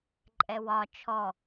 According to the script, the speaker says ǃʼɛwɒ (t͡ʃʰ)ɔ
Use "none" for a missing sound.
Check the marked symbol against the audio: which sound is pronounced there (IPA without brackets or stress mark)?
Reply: t͡ʃʰ